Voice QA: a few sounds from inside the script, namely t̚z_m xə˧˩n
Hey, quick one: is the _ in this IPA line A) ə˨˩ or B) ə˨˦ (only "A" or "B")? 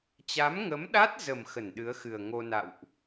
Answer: A